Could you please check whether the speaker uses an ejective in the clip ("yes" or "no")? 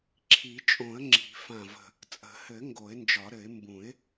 yes